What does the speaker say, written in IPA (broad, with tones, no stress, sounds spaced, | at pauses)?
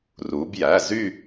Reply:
r u˩˧ b j æ˩˧˩ z y˥˧